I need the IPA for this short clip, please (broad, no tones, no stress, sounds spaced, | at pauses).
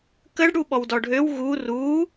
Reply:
k ə ɖ ɽ u ɓ ɔ w d ɔ ɖʱ ø w ɣ u r u